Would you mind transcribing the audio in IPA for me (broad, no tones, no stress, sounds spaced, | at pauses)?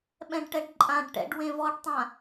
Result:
ɓ ɛ̃ ɖ ʈ ɛ ɖ ǃʼ ã ɖ ʈ ɛ̰ ɖ w ẽ v ɔ ɖ tˤ ã